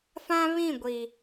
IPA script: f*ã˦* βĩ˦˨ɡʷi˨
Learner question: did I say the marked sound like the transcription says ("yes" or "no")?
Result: yes